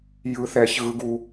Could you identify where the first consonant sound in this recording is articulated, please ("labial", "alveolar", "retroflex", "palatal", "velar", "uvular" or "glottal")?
palatal